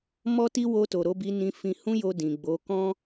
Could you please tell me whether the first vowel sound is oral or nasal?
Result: oral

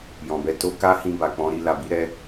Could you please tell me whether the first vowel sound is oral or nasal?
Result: nasal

